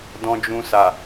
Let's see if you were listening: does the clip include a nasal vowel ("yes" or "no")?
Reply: yes